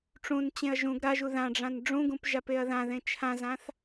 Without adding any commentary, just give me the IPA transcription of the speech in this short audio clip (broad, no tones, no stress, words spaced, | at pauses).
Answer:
ʈ͡ʂũnt͡ɕẽɐ̯ ʒũɡ ɾaʒu ðãɖ͡ʐãn ɖ͡ʐũɡũpʒapeɐ̯ ðãðẽ t͡ʃʰãzãθ